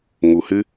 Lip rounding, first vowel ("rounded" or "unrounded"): rounded